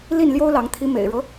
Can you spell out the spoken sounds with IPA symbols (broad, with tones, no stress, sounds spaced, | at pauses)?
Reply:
l i˥˨ n l j o˦ ʊ̯ l ɑ˨˦ ŋ t̪ʰ i˨˦ m ḛ˨˩ ɪ̯ ɻ ɤ˦